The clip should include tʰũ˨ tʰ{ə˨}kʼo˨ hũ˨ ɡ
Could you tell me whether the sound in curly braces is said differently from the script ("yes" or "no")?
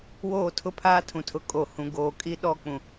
yes